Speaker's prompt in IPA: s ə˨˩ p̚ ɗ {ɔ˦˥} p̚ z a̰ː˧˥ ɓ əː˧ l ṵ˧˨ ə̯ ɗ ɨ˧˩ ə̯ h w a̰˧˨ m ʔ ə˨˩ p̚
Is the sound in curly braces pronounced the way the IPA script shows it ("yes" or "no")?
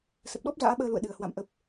yes